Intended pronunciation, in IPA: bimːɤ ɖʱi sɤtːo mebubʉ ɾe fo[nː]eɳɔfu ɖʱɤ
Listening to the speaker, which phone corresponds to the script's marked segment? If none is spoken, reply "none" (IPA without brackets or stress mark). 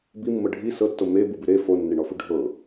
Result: nː